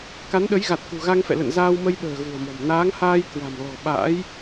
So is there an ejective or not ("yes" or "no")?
no